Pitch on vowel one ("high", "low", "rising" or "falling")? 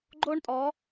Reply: high